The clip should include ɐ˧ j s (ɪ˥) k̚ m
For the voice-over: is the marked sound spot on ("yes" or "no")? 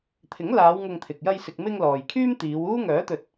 no